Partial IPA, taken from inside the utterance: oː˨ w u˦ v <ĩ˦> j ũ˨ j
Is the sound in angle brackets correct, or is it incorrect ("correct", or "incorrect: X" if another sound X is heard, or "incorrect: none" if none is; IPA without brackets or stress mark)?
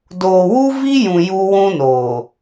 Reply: incorrect: i˦